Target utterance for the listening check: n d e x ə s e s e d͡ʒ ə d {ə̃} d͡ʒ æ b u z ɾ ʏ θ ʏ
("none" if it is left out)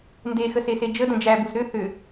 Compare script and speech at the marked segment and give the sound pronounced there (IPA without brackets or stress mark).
ə̃